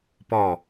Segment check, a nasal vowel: absent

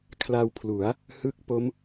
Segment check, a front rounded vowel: absent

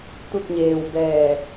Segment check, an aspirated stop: absent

